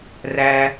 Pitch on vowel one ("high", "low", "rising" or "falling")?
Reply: high